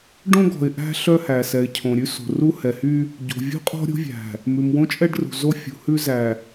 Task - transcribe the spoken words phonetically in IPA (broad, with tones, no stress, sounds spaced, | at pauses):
ɖ õ˦ ɡ ɔ̤˨ ɪ̯ ʔ æ̤˦ ɬ œ˦ h æ˨ s ɛ˨ ɪ̯ cʰ õ˨ ɾʲ ʉ˦ s o̤˨ r u˦ h ɛ˨ h y˦ | ɟ o̤˨ vʲ ṳ˦ qʼ ɔ̤˦ ɾʲ o̤˦ vʲ æ̤˨ | m ʉ˨ m w õ˦ t͡ʃʼ ɛ˦ ɖ r ṳ˨ z o˦ fʲ ṳ˨ h ʉ˦ z æ˨